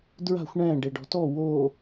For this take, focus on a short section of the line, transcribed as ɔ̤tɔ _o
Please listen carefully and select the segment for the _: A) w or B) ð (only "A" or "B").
A